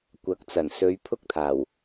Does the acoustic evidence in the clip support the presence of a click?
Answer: no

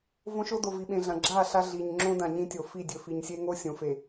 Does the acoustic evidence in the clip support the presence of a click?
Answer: yes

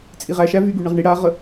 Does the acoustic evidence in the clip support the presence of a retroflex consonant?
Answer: yes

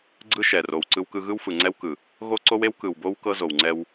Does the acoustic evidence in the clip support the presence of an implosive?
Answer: no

